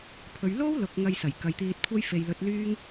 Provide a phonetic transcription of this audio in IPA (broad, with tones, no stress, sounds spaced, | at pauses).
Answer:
pʰ ɵ˨˧ ɥ l o˥ w l ʊ˨˥ k̚ ŋ ɐ˧ j s ɐ˨˩ j k ɐ˨˧ j t̪ iː˧ t̚ kʷʰ ɐ˥ j f e˨ j l ɵ˨˥ t̚ l yː˥ ŋ